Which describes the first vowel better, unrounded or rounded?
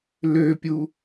rounded